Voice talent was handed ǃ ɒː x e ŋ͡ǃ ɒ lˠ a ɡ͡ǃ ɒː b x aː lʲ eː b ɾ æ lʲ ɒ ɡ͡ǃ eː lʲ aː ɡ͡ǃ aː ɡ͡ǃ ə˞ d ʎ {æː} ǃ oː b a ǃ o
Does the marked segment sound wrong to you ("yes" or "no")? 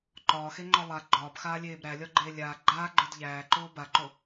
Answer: no